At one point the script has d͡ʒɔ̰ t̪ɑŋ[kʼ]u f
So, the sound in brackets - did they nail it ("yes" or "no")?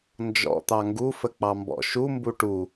no